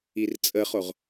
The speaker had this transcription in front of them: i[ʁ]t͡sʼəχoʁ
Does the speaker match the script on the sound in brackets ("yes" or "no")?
no